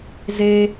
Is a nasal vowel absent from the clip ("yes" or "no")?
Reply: yes